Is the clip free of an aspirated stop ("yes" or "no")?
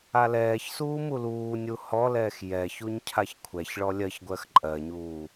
no